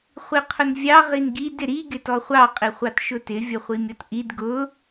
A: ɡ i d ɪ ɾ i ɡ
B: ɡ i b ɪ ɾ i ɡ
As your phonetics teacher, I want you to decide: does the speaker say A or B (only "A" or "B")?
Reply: A